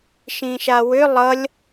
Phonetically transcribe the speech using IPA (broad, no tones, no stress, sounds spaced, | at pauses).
ʃ ĩ ʃ a w ʏ lˠ ʌ lʲ